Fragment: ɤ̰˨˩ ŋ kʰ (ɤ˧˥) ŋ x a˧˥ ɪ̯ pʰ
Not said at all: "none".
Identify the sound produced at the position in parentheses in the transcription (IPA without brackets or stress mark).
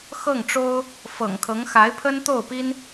ɤ˧˥